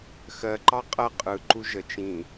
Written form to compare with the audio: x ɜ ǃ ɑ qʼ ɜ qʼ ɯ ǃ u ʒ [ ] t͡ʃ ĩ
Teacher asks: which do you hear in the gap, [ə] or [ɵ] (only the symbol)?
ə